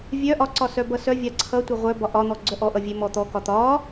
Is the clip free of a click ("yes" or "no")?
no